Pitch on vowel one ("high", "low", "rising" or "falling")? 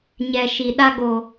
low